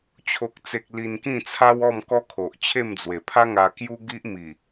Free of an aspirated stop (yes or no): no